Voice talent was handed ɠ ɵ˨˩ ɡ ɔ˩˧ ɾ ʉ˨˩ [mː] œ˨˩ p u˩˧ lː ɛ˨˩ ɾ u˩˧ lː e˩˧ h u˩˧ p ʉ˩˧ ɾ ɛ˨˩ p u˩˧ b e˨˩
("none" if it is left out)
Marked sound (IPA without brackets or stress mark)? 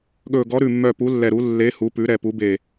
mː